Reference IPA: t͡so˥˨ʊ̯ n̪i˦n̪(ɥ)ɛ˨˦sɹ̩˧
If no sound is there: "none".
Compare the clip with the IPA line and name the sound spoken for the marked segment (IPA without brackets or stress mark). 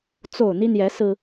j